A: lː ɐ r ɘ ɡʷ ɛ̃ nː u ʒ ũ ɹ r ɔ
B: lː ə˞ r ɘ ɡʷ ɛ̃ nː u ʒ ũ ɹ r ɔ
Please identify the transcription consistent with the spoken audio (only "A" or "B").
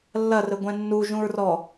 A